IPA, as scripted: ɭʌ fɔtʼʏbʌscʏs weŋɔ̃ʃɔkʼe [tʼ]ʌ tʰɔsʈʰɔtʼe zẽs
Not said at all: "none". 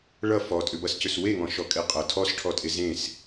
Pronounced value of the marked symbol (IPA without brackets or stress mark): qʼ